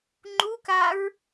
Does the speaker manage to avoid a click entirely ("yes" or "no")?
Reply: no